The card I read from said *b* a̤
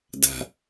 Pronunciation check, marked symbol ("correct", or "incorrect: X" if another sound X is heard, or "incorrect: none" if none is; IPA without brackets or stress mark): incorrect: d